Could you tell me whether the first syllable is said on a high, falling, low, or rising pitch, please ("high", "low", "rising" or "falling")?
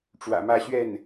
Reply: low